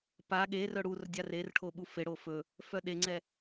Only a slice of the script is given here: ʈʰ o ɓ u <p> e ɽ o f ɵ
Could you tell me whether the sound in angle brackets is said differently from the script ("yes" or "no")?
yes